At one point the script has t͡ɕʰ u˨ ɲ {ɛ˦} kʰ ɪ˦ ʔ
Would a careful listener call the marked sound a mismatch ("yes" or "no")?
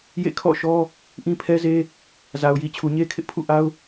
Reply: yes